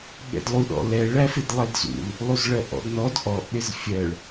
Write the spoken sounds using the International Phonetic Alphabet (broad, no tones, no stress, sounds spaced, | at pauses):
ɠ ɛ̰ d lˠ u ɗ ɔ̰ l ɛ ɭ æ f ɪ d lˠ ɛ d z ṵ l | lˠ u z ɭ ɜ ʔ ɔ̰ d n ɔ d ʔ ɔ ʔ ɗ ɪ z fʲ ɜ ɭ